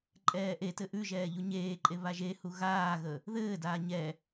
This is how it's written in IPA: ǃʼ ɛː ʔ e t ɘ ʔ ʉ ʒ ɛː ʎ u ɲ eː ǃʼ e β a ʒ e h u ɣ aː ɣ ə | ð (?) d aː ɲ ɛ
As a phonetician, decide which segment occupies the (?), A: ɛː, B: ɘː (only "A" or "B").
B